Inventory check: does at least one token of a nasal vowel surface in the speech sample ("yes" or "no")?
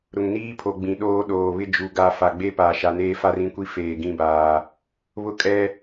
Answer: yes